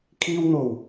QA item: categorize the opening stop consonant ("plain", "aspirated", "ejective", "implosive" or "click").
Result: aspirated